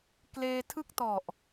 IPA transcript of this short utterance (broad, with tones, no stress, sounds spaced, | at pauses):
k l eː˧ tʰ ɯ˥˩ k̚ t ɔ˨˩ ʔ